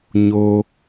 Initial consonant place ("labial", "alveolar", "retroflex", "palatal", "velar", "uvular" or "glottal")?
palatal